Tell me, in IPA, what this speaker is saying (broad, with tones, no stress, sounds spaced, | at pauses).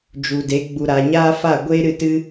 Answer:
d͡ʒ u˨ d e˨˦ ɡ͡b u˨ ɾ aː˨ ɲ aː˦ f a˦˨ ɡʷ eː˦ ɾ ɨ˦˨ t ɨ˦